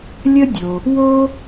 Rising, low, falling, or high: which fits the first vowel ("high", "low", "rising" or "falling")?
high